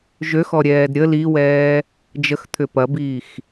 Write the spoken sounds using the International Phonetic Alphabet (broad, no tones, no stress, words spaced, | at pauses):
ʒøxɔɾʲɛːd ɾʲə liwɛː | d͡ʒəxt̪ʰʏ pɐbiːx